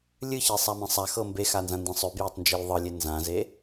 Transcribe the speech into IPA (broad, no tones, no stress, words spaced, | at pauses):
lʲɨçesˤamẽ sˤaxɤ mbexanzãndẽ sˤøbjɛtˤnd͡ʒelʲ ðˤɤlʲe nzãze